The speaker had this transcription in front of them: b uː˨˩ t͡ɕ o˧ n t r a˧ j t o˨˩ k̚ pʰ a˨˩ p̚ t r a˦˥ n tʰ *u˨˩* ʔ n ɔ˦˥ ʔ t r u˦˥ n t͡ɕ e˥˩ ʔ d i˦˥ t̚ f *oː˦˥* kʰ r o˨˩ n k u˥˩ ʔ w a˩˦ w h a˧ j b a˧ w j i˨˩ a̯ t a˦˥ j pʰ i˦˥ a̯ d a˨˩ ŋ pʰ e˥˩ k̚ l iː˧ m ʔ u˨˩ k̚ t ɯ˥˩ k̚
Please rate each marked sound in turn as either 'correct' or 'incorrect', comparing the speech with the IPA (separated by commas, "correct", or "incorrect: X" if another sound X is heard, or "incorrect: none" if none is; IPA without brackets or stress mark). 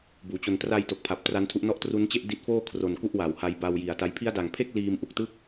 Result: incorrect: u˦˥, incorrect: oː˥˩